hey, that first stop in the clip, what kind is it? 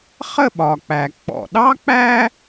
implosive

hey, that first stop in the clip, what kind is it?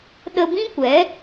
implosive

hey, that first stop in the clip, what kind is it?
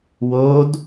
plain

